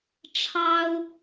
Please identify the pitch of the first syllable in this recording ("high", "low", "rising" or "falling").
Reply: high